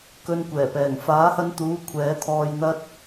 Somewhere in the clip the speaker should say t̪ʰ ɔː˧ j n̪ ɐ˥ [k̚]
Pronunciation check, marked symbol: incorrect: t̚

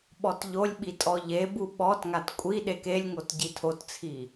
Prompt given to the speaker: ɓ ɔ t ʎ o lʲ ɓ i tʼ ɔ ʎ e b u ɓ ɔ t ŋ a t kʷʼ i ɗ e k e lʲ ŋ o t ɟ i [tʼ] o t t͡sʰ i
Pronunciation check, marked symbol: incorrect: tʰ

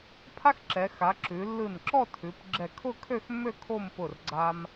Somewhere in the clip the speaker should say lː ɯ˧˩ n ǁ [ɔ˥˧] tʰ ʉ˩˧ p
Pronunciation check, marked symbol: correct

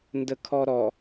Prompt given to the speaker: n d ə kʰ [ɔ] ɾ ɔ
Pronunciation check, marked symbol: correct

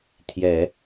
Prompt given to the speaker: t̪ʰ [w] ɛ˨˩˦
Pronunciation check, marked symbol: incorrect: j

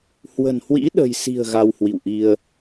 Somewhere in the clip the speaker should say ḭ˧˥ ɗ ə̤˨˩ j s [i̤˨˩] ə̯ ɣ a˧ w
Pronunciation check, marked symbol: correct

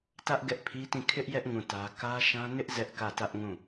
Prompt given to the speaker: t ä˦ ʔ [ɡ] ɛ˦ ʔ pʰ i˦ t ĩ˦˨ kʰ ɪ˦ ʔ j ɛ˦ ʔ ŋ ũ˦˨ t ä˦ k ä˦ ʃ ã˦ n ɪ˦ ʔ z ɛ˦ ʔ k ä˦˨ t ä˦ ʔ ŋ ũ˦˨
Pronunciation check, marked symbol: correct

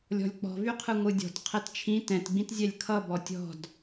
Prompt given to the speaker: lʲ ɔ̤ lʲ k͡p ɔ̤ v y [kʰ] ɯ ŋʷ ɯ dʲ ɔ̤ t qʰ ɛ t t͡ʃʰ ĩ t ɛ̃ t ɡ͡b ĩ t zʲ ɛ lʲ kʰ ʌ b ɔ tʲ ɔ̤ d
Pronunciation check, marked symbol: incorrect: qʰ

